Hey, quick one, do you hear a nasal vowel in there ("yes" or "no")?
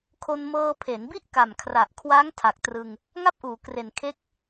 no